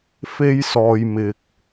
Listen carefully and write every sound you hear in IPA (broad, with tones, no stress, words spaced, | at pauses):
fe˧j sɔː˨jmɪ˨k̚